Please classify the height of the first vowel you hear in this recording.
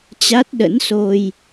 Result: low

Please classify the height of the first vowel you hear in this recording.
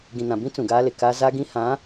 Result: high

